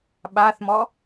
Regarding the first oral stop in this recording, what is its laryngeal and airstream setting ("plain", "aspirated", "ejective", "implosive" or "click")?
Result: implosive